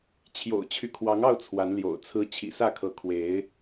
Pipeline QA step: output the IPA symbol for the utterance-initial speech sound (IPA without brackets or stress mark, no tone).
t͡ɕʰ